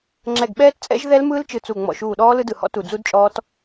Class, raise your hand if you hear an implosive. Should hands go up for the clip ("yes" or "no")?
yes